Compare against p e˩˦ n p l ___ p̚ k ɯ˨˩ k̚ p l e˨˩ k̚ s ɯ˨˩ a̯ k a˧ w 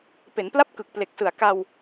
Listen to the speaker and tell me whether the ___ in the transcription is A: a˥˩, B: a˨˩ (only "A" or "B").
A